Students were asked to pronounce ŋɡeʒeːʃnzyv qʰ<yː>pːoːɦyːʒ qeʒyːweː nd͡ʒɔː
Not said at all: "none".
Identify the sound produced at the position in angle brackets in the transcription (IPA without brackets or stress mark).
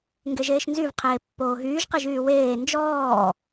eː